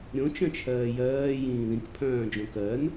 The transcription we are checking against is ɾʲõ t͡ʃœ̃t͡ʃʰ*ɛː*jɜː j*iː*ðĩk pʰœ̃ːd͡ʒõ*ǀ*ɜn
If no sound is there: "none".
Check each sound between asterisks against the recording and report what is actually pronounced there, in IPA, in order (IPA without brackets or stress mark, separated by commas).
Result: ɜː, ĩː, k